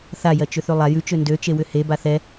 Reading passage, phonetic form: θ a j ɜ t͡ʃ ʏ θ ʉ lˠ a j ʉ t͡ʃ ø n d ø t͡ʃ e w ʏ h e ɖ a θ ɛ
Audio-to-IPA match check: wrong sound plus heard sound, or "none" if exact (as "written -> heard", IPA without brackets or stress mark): ɖ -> b